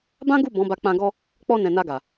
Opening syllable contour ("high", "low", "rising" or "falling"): high